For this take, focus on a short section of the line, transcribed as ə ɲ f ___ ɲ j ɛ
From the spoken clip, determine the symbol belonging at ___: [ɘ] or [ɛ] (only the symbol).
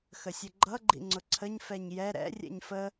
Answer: ɛ